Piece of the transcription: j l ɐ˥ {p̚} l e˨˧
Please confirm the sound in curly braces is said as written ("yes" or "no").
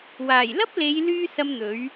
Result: yes